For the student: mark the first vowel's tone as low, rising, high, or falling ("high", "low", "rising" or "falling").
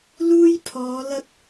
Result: high